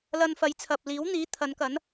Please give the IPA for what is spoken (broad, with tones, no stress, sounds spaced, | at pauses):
l ɐ˧ n f ɐ˨˧ j t͡sʰ ɐ˨ p̚ l iː˨˥ w n̪ iː˨˥ t̪ʰ ɐ˨˧ n k ɐ˨˥ n